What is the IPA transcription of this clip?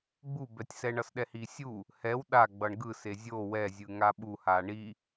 ɡ͡b u b ɛ tʲ s ɛ ɳ ʌ s ɗ ɛ h i sʲ u | h ɛ w ɗ a ɡ͡b ʌ ɳ ɡ ɯ s e zʲ o w ɛ zʲ ɯ ŋ a ɓ u h a ɳ i

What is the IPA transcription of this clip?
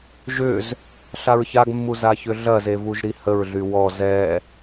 ʒ ʏ z | ɬ a ɹ ç a ɡ mː u z a ç ʏ ɮ ɐ z e v u ʒ ɾ i h ə ɹ ɮ y w ɔ z ɛ

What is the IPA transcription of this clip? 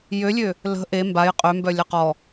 j ø lʲ ø | l ə̤ ʔ e m b a j qʼ ø m b œ lʲ ə q ɔ

